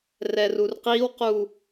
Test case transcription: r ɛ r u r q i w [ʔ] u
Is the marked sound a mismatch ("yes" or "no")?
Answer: yes